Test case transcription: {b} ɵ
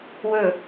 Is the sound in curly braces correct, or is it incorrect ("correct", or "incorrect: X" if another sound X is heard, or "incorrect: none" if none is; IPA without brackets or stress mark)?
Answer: incorrect: w